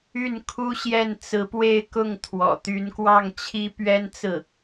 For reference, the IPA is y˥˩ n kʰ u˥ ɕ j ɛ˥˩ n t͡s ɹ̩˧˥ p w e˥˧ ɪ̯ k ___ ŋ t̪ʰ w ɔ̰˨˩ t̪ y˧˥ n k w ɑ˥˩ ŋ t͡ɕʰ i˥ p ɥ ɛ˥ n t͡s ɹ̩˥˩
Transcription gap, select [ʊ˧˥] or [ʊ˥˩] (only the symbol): ʊ˥˩